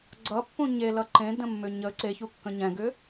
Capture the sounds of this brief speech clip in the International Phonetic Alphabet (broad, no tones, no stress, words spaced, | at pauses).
ɡ͡ǀʌpːũ ɲelʌ ǃẽdə̃mːʏ ɲə ǀeçukːə̃ ɲɛ̃ɡʏ